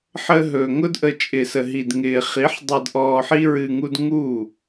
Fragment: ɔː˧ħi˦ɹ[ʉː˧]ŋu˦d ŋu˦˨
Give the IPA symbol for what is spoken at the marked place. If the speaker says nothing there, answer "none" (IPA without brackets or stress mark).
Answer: ɨː˧